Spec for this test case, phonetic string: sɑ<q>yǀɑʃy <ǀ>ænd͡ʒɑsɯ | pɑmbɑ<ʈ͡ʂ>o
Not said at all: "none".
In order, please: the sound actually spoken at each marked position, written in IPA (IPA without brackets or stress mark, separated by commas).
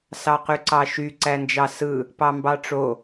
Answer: q, ǀ, ʈ͡ʂ